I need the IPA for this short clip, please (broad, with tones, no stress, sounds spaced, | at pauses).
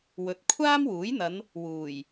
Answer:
w ɵ˨˥ t̚ kʷʰ aː˥ m w uː˨˥ j n̪ ɐ˨˧ n | w uː˨˩ j